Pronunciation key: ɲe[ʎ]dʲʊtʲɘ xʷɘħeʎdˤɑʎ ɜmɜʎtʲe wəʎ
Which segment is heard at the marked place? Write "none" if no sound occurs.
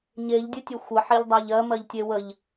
ʎ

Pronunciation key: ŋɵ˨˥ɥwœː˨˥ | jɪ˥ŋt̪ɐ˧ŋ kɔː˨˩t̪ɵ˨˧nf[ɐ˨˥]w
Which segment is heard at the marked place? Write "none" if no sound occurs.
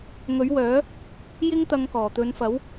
ɐ˨˥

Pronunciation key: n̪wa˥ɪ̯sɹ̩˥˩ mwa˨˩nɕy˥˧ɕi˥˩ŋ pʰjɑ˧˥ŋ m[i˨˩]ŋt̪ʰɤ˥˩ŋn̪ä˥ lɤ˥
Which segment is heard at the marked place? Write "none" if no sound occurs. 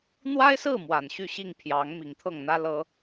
i˨˩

